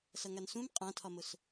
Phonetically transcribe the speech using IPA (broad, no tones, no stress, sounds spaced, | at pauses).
s ʌ ŋ a n s ũ m qʼ ã tʰ ɒ m ʊ s